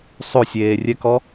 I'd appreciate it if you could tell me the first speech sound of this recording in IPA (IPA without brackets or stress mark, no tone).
sˤ